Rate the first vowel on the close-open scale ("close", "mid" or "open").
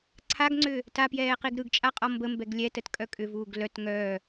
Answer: open